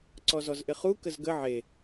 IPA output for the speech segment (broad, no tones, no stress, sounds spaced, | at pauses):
ǀ ɔ z ɔ z ʔ ɪ χ u k ə z ɡ ə ʕ e